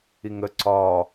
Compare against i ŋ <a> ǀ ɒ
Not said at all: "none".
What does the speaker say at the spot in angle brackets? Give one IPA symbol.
ə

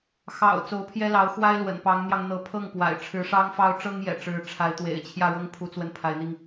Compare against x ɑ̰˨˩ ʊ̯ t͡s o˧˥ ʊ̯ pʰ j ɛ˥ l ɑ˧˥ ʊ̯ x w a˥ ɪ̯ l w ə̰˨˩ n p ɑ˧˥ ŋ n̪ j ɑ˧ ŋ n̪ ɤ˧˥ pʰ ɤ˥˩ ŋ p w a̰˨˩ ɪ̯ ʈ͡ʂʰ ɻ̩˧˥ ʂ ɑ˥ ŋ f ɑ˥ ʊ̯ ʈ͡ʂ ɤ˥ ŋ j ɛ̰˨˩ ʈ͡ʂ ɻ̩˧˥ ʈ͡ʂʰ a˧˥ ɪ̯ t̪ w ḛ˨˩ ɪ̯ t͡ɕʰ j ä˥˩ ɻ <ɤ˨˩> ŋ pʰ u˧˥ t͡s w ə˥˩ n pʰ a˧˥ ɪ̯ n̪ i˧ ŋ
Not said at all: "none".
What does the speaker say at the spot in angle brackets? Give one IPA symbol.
ɤ˥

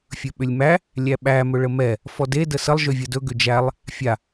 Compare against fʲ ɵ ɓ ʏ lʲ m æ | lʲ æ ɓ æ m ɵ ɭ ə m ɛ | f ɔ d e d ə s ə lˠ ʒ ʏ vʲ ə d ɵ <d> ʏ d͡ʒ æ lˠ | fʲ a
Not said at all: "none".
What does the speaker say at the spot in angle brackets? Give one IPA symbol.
ɡ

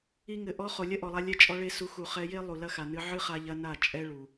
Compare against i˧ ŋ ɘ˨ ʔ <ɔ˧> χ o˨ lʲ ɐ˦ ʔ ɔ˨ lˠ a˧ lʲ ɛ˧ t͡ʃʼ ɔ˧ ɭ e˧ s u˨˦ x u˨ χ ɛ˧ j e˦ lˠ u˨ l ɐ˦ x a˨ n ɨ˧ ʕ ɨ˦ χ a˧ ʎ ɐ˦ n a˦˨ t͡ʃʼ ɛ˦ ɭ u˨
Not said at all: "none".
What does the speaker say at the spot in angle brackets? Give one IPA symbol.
ɔ˧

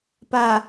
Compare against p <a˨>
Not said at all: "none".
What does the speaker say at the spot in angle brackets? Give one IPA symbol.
a˨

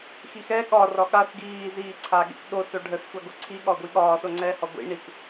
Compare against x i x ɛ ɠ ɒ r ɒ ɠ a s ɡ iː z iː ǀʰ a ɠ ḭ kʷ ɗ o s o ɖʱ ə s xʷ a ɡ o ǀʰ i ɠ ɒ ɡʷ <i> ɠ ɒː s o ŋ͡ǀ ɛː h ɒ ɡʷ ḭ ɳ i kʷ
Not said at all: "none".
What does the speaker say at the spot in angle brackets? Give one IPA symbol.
i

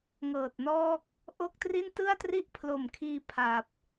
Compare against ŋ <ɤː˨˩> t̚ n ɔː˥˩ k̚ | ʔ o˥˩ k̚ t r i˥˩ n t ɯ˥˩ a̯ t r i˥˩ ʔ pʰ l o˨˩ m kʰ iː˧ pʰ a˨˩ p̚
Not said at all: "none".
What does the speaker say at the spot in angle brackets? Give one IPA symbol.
ɤː˨˩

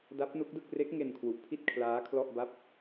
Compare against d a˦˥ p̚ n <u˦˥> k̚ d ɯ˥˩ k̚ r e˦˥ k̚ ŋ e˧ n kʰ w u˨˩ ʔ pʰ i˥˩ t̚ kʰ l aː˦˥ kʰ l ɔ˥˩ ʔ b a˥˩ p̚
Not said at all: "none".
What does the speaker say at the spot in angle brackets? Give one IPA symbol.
u˦˥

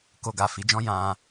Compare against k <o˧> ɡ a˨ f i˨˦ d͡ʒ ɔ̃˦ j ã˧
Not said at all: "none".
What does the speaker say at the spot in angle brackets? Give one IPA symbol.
o˧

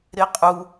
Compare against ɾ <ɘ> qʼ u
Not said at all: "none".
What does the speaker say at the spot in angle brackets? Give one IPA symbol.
e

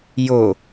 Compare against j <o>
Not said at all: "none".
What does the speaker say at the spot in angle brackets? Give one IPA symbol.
o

